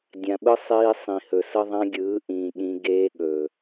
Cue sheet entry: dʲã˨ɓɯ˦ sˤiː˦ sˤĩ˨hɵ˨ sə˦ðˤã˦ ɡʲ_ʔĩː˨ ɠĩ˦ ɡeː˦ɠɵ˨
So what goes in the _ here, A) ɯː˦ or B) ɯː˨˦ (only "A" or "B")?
B